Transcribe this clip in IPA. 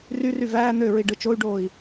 r y r y v æː n̪ ø ɹ i ɖ ɯ t͡ʃ o y̯ ɖ oː i̯

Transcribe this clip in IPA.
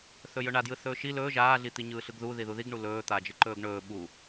θ ɵ j ɵ ɳ a d j ɯ θ ɵː ʃ i l ɵː ʒ aː ɮ i t̪ i ɲ ɯː ɬ ɯ ɡ ð u ð i ð u ð i ɡ ɳ u l ɵː t̪ a d͡ʒ ɯ ǃ ɵː ɡ ɳ ɵː ɓ u

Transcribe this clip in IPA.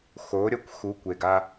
x o˨˦ ɾʲ ʌ˦ kʷ x u˨˦ kʷ e˨ ɡ a˦

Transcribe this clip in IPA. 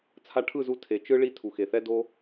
t͡sʰ a˧ ʈʰ ɯ˦˨ z u˧ tʰ e˨ t͡ʃ ɯ˦ ɭ i˦ tʰ u˨ x e˨ θ ɛ˦ d o˧

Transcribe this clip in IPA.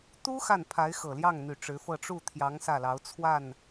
t̪ u˥ x a˥˩ n pʰ a˧˥ ɪ̯ x ɤ˨˩ l j ɑ˥˩ ŋ n̪ y˨˩ ʈ͡ʂ ɻ̩˧˥ f ɤ˥˧ ʈ͡ʂ u˥˩ t̪ʰ j ɑ˧˥ ŋ s ä˥˩ l ɑ˧˥ ʊ̯ t͡sʰ w a˥˩ n

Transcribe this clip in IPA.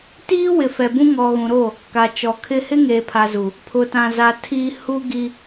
t iː˦ w ɪ˨ f ɛ˨ b ũ˦ ŋ ɔ˨ ɣ ũ˨ ɾ o˦˨ | k a˨ t͡ʃ ɔ˨ kʰ ɪ˦ h ɪ˦ ŋ eː˨ pʰ a˨ z u˨ | pʰ ʊ˨ t ã˨ z a˨ tʰ i˨ h u˦ ɡ i˨

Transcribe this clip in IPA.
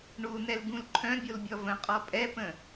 ɳ u n ɛ l ɡ ũ l ǃʰ œ̃ bʲ o l bʲ ɔ v ə̃ qʼ ɔ pʼ ɛ p ə̃

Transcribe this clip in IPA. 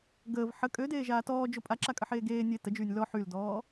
ɡ əː v ħ ə kʼ ø d eː ʒ aː t ɔː d͡ʒ o pʼ a ǁ a kʼ ə ħ eː ɡ eː nʲ e t ə d͡ʒ yː nʲ l ɔ ħ y l d ɔː

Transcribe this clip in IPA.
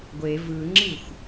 ɡʷ e v ɯ ŋ͡ǁ i xʷ

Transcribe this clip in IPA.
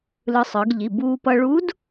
l ɯ˧ sˤ ɯ˩˧ ɡ ʎ i˩˧˩ b uː˧ p ʌ˧ ɭ u˧˥ d

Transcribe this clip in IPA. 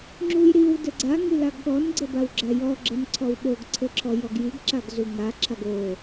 ŋ͡ǁ u j ɾ i w d ɘ ɡ͡ǀ a ŋ i l a ɡ ɠ ɔ n ɡ͡ǀ ɘ b a w ɡ͡ǁ a j ɔ ɡ͡ǁ ɘ n ǀʰ ɔ w ɓ o ɡ ǀʰ ɘ ǁʰ ɔ j ɔ ɡ j i ɡ ǁ a ɡ z u ŋ a ǁʰ a ɡ o

